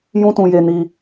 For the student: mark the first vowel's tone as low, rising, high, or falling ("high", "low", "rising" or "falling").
high